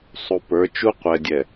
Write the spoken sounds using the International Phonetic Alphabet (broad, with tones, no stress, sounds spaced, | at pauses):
sˤ u˨ p ə˞˨˦ t͡ʃ u˦ qʷ ɛ˨ dʲ ɛ˨